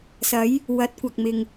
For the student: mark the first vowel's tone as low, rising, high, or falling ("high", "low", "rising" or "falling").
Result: rising